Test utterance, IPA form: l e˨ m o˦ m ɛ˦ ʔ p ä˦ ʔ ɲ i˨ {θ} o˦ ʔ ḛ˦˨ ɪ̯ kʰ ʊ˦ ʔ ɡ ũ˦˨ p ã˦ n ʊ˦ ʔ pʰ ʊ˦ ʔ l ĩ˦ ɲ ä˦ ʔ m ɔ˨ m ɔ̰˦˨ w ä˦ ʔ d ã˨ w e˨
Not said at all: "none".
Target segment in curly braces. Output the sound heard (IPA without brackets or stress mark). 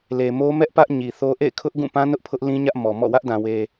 θ